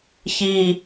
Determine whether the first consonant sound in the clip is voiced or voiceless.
voiceless